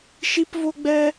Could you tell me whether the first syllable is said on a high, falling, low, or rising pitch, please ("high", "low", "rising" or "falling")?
high